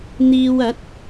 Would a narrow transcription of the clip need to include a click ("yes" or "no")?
no